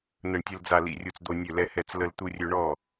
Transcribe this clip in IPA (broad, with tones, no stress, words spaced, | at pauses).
nə˧˩ɳtʲə˧ld͡za˧˩ lḭ˧˩rʲu˧˩t͡sd̪o˧ nʲø˧˩lɛ˧hɛ˧˩t͡s lə˧l t̪u˧rʲø˧ ɳɔ˧˩